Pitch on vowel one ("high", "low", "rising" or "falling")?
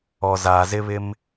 low